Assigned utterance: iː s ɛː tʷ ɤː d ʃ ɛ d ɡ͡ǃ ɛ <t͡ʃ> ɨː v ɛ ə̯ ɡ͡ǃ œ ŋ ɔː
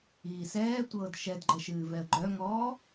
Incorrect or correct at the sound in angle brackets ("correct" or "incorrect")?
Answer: incorrect